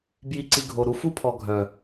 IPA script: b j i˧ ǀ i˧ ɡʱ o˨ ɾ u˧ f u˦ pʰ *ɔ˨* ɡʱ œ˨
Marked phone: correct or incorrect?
correct